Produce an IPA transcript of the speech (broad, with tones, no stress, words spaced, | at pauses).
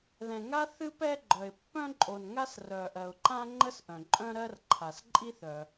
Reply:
ðɛ̃˩ŋa˥ θɨ˥pɛ˥ɡ͡ǃœ˩ɪ̯ pːœ̃˥ǃʼo˩nŋa˥s rœ˩ʔɜ˩ʊ̯ǃã˥ŋ͡ǃə˥s ʔœ̃˩ǃʼœ̃˥ɾɜ˥rǃʰa˩s ǃʼi˥θœ˩